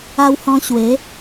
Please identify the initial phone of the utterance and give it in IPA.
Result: a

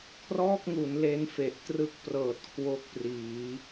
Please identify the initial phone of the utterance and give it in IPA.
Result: kʰ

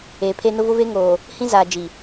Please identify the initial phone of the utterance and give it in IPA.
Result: eː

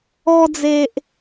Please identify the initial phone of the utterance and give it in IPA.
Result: ɔ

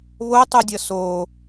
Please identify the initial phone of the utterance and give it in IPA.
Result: β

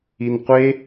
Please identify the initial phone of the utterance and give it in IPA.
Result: i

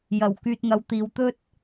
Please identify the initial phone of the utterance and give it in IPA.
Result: j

